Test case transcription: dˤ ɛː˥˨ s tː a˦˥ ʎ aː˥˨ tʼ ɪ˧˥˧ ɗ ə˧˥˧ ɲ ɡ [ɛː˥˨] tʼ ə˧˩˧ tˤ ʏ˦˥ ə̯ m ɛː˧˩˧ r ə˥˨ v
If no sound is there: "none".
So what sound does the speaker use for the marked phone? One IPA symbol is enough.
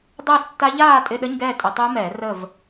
ɛː˥˨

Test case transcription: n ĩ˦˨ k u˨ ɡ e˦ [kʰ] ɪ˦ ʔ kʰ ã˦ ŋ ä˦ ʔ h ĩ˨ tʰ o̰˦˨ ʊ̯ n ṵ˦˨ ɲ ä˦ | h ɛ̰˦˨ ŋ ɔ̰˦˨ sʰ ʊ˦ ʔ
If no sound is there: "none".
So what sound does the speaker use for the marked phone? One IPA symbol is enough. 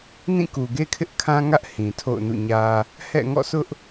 kʰ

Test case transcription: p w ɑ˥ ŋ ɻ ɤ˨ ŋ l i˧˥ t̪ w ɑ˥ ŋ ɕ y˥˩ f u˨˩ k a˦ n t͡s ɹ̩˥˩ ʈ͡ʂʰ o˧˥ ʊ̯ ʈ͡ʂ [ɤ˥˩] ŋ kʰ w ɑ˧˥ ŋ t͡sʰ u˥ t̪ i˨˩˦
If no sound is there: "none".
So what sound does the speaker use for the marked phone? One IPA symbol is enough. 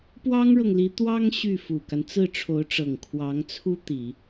ɤ˨˩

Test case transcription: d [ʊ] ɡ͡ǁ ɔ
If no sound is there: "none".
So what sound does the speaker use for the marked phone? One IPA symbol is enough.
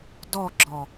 ɔ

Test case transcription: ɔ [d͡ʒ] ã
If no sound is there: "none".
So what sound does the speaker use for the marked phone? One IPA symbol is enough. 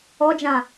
d͡ʒ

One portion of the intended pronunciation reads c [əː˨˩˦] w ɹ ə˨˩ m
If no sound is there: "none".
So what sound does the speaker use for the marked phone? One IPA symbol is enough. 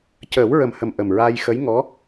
əː˨˩˦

